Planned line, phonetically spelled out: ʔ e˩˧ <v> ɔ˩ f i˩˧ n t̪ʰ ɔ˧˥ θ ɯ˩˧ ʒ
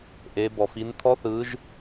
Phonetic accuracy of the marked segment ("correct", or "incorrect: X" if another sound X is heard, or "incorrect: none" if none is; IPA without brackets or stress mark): incorrect: b